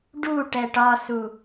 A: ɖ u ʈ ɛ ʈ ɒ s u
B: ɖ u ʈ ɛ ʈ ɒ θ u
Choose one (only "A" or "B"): A